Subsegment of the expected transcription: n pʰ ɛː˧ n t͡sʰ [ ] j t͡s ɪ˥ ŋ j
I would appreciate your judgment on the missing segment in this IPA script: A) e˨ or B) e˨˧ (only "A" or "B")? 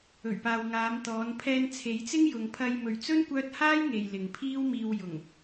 B